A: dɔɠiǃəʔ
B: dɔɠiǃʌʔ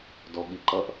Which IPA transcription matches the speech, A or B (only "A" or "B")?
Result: B